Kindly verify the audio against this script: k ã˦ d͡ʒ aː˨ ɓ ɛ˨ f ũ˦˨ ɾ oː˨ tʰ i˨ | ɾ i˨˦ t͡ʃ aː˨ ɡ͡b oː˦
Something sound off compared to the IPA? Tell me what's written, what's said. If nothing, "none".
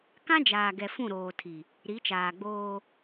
ɓ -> ɡ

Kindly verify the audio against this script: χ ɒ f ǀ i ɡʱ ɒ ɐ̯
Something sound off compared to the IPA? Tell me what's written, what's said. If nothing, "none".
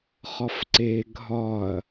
i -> e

